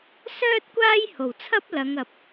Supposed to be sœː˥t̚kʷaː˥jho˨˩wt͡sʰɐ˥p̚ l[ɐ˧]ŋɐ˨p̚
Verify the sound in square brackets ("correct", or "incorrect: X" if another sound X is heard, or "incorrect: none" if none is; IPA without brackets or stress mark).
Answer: incorrect: ɐ˨˧